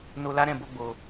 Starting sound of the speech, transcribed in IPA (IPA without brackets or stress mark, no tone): n